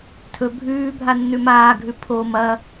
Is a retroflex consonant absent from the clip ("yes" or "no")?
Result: yes